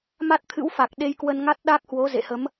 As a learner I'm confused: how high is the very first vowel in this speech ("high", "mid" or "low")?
low